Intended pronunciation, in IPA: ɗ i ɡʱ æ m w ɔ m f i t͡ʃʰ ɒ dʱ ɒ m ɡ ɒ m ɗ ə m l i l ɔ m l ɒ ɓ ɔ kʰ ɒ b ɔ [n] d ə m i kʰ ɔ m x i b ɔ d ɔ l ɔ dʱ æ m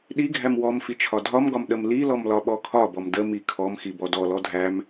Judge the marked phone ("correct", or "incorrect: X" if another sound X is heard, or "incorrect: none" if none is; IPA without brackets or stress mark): incorrect: m